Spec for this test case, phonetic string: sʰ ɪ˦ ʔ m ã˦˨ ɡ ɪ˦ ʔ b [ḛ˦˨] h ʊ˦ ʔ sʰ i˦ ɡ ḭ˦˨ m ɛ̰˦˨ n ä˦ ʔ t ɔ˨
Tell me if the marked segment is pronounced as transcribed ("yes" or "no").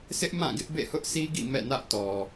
yes